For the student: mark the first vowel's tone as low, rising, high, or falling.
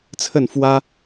falling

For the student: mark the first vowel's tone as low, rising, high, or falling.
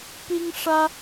high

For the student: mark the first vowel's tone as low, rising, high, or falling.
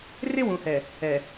high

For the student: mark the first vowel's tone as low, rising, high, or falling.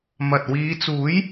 low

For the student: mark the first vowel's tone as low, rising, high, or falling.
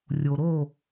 low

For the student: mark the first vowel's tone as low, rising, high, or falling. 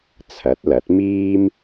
rising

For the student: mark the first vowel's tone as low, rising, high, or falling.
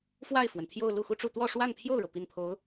falling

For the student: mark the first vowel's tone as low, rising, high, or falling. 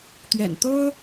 low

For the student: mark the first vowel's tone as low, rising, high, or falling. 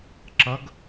rising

